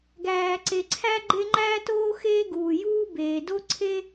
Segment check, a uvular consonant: absent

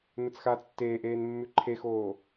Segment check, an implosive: absent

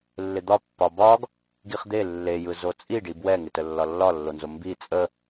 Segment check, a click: absent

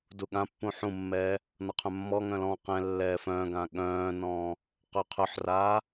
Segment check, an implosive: present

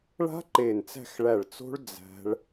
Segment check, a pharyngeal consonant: absent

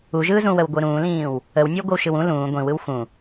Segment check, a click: absent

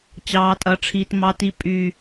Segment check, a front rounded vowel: present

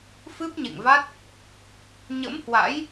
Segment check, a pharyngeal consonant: absent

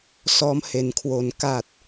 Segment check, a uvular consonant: absent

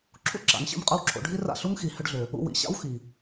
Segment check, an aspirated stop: present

